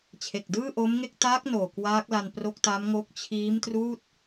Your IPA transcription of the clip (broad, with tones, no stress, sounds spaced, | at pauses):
t͡ɕʰ e˨˩ k̚ d ɯː˥˩ ʔ o˦˥ m ŋ e˥˩ k̚ t aː˦˥ k̚ n oː˨˩ k w aː˦˥ k̚ l a˧ n p r o˦˥ k̚ t a˦˥ m ŋ o˦˥ k̚ t͡ɕʰ iː˦˥ m t r uː˥˩ t̚